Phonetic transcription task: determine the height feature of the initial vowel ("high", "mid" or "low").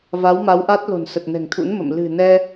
low